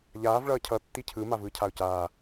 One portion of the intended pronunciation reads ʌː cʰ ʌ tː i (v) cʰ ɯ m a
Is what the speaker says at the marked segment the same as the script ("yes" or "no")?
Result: no